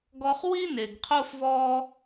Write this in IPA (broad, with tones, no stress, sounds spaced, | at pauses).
ɡ ɔ˧ χ w i˦ n e˨ ɡ qʰ o˦ f v ɔ˦